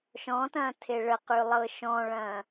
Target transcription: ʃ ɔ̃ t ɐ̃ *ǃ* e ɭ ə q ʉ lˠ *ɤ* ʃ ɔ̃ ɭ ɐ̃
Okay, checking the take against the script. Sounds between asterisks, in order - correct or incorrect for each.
incorrect: tʰ, correct

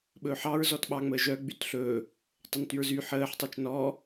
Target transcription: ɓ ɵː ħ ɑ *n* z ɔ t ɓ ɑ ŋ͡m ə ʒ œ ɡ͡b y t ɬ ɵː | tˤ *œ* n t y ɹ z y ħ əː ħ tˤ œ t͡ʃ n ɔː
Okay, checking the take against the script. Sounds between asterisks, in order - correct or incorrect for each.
incorrect: ɹ, incorrect: ɵ

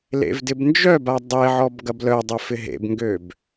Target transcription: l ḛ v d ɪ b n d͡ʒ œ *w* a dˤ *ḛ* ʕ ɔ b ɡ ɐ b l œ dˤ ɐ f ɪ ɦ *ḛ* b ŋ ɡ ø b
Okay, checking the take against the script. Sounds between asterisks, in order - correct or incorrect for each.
incorrect: b, incorrect: e, correct

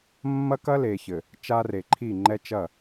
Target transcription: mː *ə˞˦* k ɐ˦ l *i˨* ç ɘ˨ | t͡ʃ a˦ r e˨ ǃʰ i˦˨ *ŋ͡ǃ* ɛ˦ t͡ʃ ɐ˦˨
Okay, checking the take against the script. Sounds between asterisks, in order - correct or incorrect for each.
incorrect: ɐ˦, incorrect: e˨, correct

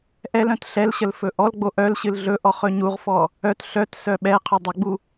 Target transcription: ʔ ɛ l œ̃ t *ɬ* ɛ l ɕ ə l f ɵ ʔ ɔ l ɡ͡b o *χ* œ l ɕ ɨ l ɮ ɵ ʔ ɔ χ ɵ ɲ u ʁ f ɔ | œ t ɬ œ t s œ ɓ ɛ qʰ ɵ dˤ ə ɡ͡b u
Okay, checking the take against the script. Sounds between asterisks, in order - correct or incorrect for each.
correct, incorrect: ʔ

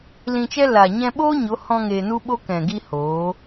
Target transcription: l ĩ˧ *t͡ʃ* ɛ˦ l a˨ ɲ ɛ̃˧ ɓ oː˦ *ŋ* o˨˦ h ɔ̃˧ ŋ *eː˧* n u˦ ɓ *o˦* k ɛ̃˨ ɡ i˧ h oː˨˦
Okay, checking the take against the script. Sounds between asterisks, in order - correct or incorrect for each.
correct, incorrect: ɲ, correct, correct

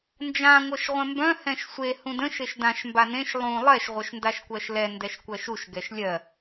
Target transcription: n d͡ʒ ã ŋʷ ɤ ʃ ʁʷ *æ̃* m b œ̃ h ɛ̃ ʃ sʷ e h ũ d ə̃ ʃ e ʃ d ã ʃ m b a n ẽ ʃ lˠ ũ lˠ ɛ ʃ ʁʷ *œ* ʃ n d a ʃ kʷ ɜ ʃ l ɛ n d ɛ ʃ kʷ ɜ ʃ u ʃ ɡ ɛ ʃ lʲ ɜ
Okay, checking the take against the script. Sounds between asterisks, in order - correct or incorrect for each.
incorrect: ɛ̃, correct

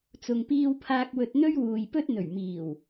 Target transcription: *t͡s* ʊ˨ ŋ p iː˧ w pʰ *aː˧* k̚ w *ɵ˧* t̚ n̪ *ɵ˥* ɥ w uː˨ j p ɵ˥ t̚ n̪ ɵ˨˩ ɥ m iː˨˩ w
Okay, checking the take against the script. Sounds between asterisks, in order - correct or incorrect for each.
correct, correct, correct, correct

